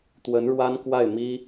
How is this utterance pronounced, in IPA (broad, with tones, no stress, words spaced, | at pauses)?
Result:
t̪wə˧˥nɻwa˥nkwa˥˩ɪ̯ mi˥